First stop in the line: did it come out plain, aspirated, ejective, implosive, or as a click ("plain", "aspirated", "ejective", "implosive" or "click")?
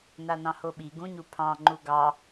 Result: implosive